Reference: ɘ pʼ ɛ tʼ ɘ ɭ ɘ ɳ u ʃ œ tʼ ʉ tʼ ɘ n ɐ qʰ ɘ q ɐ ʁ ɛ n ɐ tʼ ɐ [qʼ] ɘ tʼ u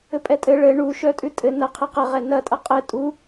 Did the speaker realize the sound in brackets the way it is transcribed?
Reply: yes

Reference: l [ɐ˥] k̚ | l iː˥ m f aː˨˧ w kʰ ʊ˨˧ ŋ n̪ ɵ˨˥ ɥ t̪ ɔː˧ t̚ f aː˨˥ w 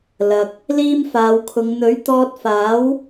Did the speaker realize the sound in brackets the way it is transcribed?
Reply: no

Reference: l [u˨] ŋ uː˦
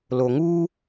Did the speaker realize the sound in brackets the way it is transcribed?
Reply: no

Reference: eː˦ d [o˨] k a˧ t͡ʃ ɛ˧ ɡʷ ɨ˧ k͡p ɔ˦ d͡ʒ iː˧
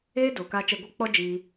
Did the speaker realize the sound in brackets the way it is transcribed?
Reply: yes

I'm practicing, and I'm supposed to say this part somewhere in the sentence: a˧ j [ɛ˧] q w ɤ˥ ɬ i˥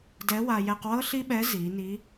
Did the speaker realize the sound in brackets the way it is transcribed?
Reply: yes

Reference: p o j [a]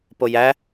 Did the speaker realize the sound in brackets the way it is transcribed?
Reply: no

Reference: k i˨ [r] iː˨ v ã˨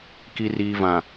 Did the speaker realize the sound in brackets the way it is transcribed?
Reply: yes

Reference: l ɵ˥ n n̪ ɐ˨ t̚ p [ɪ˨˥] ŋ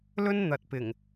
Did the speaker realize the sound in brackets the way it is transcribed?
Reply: no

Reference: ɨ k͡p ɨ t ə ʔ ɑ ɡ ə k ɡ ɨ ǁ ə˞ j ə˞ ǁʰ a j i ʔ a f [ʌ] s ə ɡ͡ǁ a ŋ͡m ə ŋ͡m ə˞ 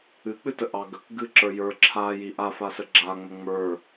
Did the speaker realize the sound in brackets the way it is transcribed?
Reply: no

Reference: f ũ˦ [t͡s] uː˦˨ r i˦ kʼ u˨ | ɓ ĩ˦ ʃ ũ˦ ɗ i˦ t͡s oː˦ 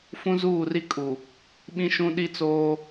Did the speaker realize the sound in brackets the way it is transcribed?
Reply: no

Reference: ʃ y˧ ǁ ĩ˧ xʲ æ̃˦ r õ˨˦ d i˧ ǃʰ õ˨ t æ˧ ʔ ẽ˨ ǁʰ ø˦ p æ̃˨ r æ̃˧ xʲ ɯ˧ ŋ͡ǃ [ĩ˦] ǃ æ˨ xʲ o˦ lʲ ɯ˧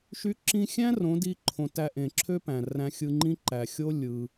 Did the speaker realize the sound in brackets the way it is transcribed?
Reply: yes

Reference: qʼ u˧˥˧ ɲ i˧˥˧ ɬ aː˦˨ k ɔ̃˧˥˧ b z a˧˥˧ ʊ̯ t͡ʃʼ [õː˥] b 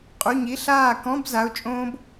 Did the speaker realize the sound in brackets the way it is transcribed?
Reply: yes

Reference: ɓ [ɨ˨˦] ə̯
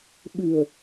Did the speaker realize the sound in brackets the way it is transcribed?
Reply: no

